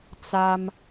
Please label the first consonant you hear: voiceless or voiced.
voiceless